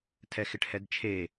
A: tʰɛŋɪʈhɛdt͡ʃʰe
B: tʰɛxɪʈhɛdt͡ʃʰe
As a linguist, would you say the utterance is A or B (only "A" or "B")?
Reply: B